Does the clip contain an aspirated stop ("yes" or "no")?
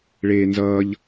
no